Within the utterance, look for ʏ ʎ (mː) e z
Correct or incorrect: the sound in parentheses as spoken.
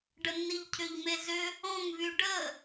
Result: incorrect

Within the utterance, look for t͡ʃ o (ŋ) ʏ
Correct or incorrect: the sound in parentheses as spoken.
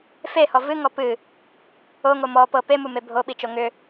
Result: correct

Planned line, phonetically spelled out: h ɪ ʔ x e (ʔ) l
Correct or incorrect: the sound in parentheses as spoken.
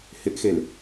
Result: incorrect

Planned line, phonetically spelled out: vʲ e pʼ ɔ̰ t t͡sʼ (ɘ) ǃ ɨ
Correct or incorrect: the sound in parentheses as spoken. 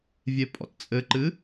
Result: correct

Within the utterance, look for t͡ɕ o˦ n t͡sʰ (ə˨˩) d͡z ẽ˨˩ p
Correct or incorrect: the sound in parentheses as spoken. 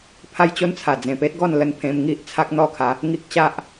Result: incorrect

